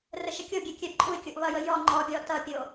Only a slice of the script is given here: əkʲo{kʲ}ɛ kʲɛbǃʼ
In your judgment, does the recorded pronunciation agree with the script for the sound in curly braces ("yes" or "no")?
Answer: no